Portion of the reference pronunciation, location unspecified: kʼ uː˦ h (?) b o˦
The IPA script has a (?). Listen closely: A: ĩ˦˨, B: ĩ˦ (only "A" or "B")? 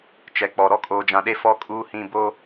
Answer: A